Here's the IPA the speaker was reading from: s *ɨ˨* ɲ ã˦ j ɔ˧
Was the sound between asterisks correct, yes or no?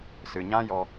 yes